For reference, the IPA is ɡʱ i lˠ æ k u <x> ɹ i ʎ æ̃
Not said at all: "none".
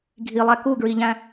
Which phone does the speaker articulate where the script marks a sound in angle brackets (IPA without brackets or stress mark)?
ɡ